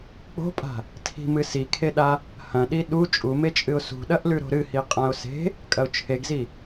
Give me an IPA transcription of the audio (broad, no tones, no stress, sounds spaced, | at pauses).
k͡p o̤ pʼ a̤ | tʰ i̤ m ɨ s i kʰ e ɗ a | h ɐ̃ ɗ i ɗ u t͡ʃʼ u m e t͡ʃʼ ɨ ʊ̯ s ṳ ɗ ɐ ʔ l ʉ ɾ o̤ ɾ ɨ h i qʼ ã ʊ̯ s e̤ | kʼ ɐ ʊ̯ t͡ʃʰ e ɡ z i